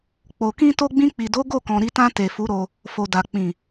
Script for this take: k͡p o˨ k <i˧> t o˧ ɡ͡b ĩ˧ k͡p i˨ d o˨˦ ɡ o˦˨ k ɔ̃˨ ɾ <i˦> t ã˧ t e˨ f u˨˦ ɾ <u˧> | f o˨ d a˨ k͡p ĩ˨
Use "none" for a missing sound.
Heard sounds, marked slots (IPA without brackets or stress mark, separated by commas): ĩ˧, i˧, o˧